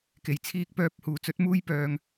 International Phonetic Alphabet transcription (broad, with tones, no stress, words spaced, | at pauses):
ke˨˩j t͡sʰiː˧k̚pœː˧p̚ huː˨˩t͡sɵ˨˥t̚muː˥j pœː˧ŋ